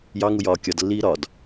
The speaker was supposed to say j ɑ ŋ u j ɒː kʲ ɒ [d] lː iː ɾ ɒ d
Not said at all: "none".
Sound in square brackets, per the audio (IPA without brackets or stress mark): d